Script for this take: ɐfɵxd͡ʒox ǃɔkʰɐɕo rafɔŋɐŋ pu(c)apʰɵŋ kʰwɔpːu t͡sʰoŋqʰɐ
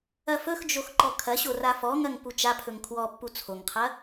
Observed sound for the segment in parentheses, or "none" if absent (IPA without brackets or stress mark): t͡ʃ